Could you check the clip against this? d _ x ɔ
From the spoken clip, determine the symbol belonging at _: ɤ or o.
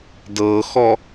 ɤ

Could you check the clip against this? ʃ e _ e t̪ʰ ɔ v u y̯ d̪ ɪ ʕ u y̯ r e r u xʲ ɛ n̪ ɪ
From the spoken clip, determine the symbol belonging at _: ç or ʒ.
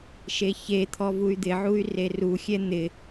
ç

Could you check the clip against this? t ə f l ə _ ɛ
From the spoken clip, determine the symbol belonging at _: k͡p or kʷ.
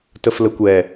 kʷ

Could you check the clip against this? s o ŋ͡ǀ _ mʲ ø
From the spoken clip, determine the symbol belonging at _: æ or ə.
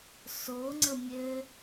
ə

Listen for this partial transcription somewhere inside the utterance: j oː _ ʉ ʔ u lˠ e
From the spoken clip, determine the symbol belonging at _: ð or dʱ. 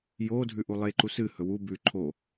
dʱ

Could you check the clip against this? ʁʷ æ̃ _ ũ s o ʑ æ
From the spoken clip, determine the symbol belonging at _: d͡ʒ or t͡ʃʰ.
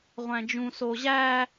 d͡ʒ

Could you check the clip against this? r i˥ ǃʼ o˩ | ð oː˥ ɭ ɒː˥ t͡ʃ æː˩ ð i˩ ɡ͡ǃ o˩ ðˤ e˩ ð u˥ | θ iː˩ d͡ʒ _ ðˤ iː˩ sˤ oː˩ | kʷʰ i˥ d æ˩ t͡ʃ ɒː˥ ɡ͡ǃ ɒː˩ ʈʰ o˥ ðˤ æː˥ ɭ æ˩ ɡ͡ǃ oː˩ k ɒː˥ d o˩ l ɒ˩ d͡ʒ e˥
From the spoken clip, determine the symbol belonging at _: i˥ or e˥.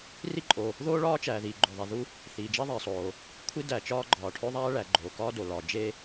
e˥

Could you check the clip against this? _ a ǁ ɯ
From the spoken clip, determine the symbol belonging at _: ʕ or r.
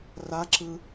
r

